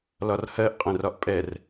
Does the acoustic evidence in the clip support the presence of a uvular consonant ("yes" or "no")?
yes